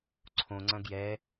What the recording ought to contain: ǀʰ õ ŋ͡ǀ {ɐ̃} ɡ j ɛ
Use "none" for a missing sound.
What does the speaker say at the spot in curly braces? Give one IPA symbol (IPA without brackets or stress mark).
ɐ̃